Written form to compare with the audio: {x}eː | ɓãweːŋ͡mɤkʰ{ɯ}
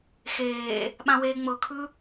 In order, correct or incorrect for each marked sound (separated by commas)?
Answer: correct, correct